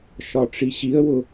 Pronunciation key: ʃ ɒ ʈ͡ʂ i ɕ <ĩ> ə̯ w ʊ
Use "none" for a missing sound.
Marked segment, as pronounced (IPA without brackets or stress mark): i